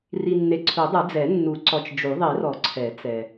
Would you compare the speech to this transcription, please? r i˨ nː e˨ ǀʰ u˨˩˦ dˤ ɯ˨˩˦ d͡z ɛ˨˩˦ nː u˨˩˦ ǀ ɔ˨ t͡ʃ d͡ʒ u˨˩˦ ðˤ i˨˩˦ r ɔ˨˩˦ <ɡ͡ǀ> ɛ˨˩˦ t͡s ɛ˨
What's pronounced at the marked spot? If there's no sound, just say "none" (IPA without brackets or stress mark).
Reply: ǀʰ